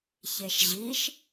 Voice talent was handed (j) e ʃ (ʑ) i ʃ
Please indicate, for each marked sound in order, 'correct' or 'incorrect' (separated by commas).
incorrect, correct